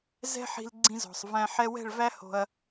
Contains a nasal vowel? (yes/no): yes